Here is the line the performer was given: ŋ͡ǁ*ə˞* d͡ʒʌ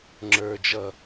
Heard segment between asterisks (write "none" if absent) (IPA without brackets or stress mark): ə˞